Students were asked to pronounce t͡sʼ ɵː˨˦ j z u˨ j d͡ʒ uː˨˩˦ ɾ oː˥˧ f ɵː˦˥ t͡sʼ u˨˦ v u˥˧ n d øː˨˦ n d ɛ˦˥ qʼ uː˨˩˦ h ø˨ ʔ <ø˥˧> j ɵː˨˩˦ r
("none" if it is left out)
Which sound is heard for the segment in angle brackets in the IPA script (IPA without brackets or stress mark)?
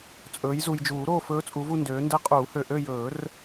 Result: ø˥˧